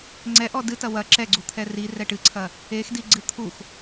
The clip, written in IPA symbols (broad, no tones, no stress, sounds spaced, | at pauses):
ŋ͡ǀ ɛ ʔ ɔ d ɨ t ɐ w ɐ ǁ ɛ ɡ͡ǀ u t̪ʰ ɛ r i r ɛ ʈ ɨ ǀʰ ɐ | e x d i ɡ͡ǀ ɨ t̪ʰ u x